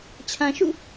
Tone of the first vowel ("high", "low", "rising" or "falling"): low